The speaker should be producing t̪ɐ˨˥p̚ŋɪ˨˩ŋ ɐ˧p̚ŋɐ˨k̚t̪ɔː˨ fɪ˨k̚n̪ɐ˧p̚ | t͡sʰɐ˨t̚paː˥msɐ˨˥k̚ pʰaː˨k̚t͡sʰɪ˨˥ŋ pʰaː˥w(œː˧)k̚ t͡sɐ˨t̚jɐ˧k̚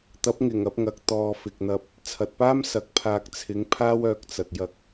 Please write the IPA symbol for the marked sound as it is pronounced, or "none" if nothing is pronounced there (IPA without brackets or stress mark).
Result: œː˧